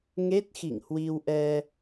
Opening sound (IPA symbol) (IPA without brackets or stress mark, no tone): ŋ